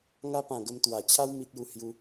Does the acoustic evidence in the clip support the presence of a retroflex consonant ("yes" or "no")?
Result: no